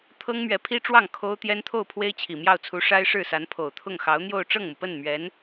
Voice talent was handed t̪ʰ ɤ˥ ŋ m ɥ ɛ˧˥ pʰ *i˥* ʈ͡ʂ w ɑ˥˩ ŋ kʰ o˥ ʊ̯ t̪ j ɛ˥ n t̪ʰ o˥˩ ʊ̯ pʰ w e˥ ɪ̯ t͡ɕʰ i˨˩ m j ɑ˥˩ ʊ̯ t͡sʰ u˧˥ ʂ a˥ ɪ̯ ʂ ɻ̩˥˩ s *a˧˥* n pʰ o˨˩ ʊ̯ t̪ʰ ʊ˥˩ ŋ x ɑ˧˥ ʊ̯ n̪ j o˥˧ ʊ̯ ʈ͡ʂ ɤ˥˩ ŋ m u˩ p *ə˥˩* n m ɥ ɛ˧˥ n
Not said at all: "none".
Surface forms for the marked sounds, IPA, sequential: i˥, a˧˥, ə˥˩

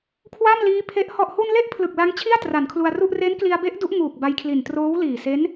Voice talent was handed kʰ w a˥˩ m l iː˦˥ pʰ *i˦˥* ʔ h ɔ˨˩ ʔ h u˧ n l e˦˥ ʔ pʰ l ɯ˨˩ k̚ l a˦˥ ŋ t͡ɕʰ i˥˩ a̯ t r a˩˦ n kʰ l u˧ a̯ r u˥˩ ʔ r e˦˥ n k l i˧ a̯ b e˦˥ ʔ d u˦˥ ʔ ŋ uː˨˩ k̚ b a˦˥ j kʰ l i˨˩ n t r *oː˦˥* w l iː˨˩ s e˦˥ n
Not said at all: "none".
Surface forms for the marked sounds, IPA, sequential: e˦˥, oː˦˥

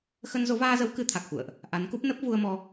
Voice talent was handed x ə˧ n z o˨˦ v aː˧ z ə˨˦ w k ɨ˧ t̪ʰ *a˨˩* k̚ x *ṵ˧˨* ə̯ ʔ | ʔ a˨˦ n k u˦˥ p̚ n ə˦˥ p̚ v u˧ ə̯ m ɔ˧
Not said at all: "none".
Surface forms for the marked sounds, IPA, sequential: a˨˩, ṵ˧˨

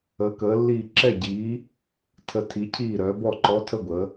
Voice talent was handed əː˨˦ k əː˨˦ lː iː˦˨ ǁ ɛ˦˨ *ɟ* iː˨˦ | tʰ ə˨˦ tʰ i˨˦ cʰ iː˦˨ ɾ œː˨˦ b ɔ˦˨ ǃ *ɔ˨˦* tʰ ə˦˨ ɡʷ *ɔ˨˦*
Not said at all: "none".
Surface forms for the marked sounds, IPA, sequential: ɟ, ɔ˨˦, ə˨˦

